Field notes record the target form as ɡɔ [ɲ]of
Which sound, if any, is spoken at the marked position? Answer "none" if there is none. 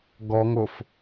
ŋ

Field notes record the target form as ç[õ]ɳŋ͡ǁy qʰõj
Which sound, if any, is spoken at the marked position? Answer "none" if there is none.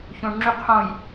õ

